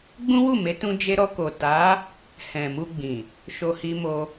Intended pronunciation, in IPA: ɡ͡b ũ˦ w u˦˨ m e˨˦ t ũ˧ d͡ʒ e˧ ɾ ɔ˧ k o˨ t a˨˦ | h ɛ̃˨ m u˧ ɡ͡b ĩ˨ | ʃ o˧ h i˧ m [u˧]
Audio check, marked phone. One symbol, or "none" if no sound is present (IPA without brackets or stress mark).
o˧